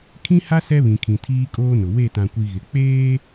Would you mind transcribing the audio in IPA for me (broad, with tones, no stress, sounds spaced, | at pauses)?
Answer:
kʰ ĩ˦ h a˦ s ɛ˦ β ĩ˨ kʰ ĩ˨ tʰ iː˦ kʼ oː˦ n ʊ˨ w e˦˨ t ã˨ kʷ i˨ ɣ ɪ˨ k͡p eː˦